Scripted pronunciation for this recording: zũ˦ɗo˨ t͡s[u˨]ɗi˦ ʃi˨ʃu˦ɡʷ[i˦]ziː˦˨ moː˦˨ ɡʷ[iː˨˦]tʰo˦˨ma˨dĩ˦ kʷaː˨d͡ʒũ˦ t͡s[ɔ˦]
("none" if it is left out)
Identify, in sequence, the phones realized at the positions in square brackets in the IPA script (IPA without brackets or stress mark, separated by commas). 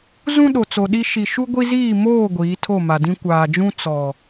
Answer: o˨, i˦, iː˨˦, ɔ˨